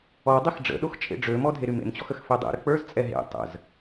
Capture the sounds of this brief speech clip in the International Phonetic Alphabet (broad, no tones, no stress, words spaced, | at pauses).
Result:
ɔdˤix ɖ͡ʐə̰ɗox t͡ʃʼḛɖ͡ʐømɔ dʱeɾymḛmt͡ɕɔx əxfedˤḛɾə k͡pə˞zt͡sʼɛ ɦḛ tˤə̰z